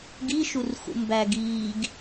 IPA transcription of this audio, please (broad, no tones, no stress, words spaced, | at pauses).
ɡiʃurxṵ mbæɡ iːɡ